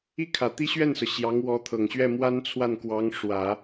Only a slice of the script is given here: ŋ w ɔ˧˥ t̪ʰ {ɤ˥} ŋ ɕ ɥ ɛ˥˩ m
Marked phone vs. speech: incorrect: ɤ˨˩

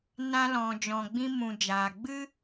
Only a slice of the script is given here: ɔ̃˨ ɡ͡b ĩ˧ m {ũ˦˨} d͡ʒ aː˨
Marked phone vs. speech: incorrect: ũ˨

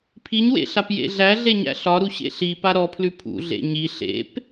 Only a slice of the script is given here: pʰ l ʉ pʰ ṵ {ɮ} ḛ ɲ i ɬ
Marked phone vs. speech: correct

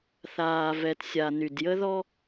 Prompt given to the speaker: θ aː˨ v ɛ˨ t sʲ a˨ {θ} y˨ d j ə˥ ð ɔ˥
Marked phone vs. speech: incorrect: n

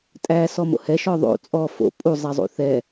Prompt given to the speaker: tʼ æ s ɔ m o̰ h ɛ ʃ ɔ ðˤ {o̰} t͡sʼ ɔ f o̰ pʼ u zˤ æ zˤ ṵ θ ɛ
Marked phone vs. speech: correct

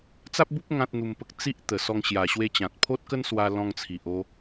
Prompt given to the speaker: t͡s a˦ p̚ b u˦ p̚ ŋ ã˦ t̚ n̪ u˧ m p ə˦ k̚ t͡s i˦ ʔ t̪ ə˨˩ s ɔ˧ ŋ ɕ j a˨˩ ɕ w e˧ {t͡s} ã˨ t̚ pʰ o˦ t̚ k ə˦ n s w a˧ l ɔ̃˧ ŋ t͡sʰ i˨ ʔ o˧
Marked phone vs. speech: incorrect: t͡ɕ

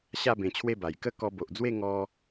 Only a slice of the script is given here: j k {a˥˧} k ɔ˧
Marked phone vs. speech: incorrect: ə˥˧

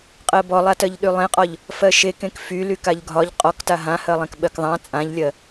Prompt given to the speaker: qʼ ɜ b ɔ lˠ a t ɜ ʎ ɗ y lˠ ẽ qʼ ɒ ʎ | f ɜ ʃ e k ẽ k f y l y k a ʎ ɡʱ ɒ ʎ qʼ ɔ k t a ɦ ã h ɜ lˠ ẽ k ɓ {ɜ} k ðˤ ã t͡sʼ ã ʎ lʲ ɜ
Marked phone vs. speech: correct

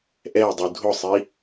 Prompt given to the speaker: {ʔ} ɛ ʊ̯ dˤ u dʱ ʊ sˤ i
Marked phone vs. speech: correct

